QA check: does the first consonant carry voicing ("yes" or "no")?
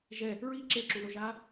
yes